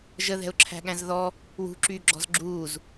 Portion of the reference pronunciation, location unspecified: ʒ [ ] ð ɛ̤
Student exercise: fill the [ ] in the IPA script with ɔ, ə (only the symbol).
ə